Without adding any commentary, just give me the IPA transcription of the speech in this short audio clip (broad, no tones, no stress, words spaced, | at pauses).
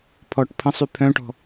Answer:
pʰɔʈ pʰə̃sˤy pʰœ̃ʈɔ̤